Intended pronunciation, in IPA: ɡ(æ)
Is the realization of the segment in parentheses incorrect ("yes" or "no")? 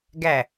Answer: no